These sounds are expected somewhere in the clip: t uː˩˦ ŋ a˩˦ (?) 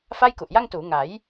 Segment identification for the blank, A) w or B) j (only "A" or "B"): B